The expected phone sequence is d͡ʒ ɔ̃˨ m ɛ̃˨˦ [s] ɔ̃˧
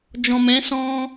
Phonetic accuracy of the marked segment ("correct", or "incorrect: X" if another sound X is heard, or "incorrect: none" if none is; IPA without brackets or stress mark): correct